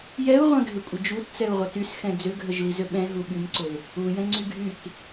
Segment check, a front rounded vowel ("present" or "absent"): present